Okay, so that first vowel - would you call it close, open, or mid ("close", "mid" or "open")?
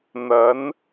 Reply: open